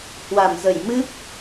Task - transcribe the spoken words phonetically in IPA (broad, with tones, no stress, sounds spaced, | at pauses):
h w a˧˩ m z ə˧˩ j m ɨ˦˥ p̚